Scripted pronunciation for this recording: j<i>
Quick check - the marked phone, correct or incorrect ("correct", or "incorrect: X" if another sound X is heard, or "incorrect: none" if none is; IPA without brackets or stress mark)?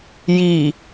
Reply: incorrect: iː